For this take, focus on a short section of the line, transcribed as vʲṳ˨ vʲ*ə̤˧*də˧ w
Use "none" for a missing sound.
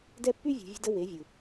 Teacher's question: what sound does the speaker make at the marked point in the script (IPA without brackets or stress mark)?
ə̤˧